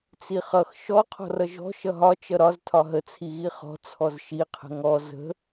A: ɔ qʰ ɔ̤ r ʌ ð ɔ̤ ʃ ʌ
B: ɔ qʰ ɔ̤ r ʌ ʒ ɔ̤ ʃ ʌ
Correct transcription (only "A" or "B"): B